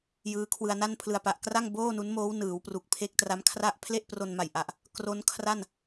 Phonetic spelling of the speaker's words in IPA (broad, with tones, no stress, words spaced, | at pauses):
jɯː˦˥kʰwɯ˧a̯na˥˩npʰlɯ˧a̯ pa˨˩ʔkra˥˩ŋ boː˥˩nu˦˥nmoː˦˥w nɯː˩˦w pru˨˩k̚pʰe˦˥k̚ tra˦˥mkʰra˥˩ʔ pʰle˥˩ʔpro˧nma˨˩jʔa˨˩ʔ | kro˦˥nkʰra˥˩n